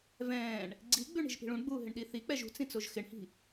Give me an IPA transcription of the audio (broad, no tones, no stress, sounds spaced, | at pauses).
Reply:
v ɛ̃ː ɳ | ɡ͡ǀ i ɡ͡b ʉ ɳ i̤ ʒ p i̤ ɭ ũ ɳ ɡ͡b uː ɦ ɪ ɳ ɗ i θ i k͡p ɛ ʒ ṳ t͡s ĩ t͡s o ʒ x ɪ ɳ h i̤